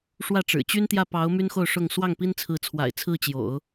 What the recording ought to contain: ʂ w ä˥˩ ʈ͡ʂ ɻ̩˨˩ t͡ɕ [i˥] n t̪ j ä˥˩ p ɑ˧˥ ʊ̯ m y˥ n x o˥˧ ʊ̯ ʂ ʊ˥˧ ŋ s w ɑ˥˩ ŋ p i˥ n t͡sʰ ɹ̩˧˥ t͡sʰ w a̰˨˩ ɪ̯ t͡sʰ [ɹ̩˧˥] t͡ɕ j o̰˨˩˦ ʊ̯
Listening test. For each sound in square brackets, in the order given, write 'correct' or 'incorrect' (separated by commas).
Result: incorrect, incorrect